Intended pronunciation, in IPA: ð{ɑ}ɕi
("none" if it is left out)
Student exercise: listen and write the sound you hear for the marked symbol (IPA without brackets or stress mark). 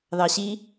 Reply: ɑ